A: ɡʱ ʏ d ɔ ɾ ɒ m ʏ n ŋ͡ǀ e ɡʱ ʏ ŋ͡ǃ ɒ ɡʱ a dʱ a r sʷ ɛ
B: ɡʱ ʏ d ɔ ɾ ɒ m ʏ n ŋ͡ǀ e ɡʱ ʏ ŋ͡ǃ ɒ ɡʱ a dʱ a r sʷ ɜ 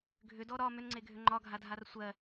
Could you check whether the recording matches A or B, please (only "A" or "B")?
B